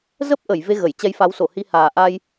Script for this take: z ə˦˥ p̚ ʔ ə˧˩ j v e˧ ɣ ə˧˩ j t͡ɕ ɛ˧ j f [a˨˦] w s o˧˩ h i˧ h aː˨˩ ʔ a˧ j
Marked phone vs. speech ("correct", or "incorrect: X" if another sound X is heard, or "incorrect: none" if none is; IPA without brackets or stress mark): correct